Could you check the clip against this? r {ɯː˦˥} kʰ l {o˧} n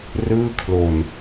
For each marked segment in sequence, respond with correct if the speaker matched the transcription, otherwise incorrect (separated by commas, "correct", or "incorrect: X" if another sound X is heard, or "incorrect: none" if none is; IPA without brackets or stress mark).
incorrect: ɯː˥˩, incorrect: o˨˩